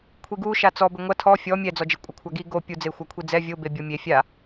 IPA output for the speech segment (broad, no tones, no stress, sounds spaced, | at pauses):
kʷʰ i ɡ u ʃ a t͡s ɔ b ɘ ŋʷ ɐ tʰ ɔ fʲ ɔ mʲ ɛ d͡z ɔ d͡ʒ e kʷʼ ɐ kʷʰ a ɡ i ɡ o pʲ u d͡z e xʷ a kʷʰ i d͡z ɛ vʲ o b e bʲ ɔ mʲ e fʲ a